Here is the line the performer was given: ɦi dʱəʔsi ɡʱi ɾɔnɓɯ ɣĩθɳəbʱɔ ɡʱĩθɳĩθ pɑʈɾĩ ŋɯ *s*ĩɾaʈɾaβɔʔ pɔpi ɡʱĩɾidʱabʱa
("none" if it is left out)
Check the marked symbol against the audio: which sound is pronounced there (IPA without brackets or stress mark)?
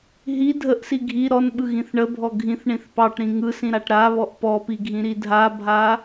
s